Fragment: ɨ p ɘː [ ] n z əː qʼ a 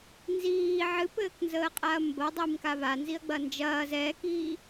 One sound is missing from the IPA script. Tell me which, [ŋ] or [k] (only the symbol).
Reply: k